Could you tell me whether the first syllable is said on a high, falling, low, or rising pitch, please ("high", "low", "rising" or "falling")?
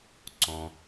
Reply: low